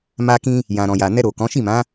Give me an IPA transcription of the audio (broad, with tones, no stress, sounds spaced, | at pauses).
m a˧ k ĩ˧ | j ã˨ ɾ ɔ̃˨ j a˨ n ɛ˧ ɾ o˨ k ɔ̃˨˦ ʃ i˦˨ m ã˨˦